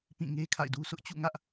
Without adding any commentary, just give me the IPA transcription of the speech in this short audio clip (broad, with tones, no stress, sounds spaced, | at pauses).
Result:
p ĩ˦˨ ŋ e˦ kʰ a̰˦˨ ɪ̯ d u˦ sʰ ʊ˦ ʔ t͡ɕ ṵ˦˨ ŋ ä˦ ʔ